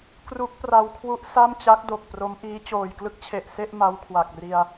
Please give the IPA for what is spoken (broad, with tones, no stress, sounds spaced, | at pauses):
k r u˦˥ k̚ p r a˧ w kʰ w u˦˥ ʔ s a˥˩ m t͡ɕ a˦˥ k̚ d o˨˩ k̚ p r o˦˥ m ʔ iː˦˥ t͡ɕ oː˨˩ j k l ɯ˦˥ k̚ t͡ɕʰ e˨˩ ʔ s e˥˩ ʔ m a˦˥ w kʰ w a˨˩ k̚ r i˧ a̯